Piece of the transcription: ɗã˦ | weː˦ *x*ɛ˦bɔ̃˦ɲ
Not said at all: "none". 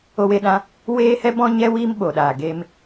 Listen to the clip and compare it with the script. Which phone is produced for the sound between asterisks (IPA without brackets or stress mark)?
h